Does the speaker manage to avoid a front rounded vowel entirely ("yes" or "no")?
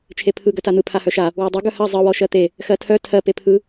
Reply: no